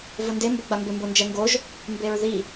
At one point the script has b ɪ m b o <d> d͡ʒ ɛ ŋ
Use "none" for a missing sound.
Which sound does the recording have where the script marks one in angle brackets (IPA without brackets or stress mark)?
n